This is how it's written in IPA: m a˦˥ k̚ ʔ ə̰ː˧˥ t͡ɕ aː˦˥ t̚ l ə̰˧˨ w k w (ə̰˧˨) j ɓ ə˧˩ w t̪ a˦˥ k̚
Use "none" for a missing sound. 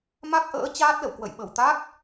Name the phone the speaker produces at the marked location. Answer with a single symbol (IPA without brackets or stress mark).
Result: ə̰˧˨